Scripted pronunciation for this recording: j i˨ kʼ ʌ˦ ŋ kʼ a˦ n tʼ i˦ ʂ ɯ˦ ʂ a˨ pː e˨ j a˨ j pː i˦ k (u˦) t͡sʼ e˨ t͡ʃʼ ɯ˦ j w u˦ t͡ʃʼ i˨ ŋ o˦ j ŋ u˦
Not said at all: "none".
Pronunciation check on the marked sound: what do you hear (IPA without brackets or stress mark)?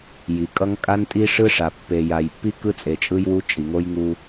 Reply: ɯ˦